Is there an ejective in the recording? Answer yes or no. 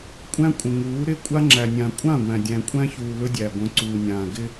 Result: yes